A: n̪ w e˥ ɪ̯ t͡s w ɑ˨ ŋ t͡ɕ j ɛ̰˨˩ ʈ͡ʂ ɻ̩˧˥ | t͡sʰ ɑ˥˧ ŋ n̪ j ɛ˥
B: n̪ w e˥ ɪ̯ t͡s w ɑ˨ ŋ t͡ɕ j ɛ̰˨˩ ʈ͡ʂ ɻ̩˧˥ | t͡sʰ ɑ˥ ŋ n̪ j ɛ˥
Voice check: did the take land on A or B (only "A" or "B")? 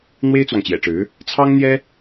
B